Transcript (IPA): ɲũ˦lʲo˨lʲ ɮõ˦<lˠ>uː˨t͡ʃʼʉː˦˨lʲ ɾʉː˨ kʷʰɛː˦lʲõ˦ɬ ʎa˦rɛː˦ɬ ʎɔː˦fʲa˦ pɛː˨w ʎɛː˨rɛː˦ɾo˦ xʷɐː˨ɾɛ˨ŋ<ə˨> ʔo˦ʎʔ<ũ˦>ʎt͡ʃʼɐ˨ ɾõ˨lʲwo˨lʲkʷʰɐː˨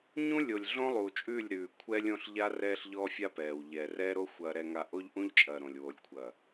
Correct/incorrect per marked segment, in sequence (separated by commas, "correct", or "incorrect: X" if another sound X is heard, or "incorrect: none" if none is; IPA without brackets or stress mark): correct, incorrect: a˨, correct